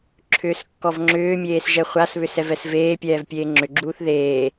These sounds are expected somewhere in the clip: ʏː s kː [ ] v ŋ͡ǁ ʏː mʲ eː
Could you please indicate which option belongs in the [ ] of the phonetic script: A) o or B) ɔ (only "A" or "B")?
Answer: B